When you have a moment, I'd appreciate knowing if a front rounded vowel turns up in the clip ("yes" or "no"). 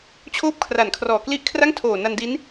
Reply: no